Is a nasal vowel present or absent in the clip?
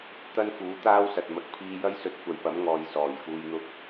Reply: absent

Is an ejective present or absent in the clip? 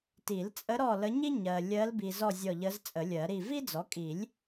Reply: present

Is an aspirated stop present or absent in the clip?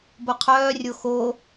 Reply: present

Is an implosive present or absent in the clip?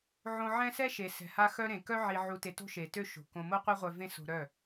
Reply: absent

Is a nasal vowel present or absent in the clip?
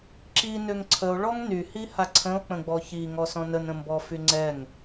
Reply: present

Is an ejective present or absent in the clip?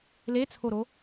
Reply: absent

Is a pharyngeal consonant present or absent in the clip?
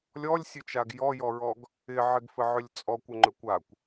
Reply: present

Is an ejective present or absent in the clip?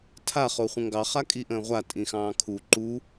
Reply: present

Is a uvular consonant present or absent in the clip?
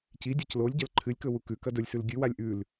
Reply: absent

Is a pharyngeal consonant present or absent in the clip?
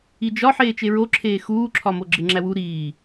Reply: present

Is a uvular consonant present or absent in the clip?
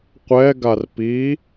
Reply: present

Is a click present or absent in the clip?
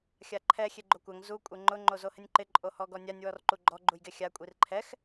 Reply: present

